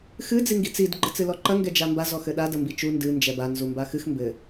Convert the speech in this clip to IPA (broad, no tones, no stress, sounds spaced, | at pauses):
x ɨ d͡z i ŋ ɡ i t͡s i d ɡ͡ǃ ɘ t͡s ɨ l ɔ ǃ ɐ ŋ ɡ ɛ d͡ʒ a m b a z ɔ x ɘ ɗ a d ɐ m b i t͡ʃ u n d ɨ n d͡ʒ ɛ b a n z u m b a x ɨ x m b ɘ